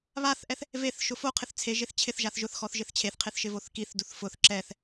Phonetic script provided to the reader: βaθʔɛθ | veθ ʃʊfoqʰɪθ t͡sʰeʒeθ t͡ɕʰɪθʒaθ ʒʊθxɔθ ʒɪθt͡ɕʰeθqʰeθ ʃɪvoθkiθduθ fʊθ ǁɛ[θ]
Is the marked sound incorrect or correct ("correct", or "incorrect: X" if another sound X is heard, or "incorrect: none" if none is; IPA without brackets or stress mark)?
correct